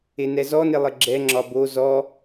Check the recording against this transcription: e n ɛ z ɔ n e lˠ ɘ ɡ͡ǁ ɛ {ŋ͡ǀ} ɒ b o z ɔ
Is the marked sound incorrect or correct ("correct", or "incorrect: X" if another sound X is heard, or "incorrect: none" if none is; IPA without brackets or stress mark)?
incorrect: ŋ͡ǁ